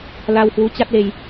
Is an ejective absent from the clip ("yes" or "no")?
yes